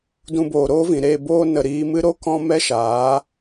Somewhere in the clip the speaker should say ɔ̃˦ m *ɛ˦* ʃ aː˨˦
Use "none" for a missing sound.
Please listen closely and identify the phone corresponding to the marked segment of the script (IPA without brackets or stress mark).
ɛ˦